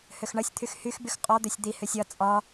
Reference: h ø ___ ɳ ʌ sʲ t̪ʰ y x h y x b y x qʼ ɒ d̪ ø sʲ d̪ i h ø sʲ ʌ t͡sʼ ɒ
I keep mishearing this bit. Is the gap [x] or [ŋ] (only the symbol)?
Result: x